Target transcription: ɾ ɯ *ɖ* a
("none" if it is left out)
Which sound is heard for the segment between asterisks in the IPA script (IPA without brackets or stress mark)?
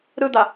d̪